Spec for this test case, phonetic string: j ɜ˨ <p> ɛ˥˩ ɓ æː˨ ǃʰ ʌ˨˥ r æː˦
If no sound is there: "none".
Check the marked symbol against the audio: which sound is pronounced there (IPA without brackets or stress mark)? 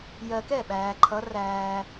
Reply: k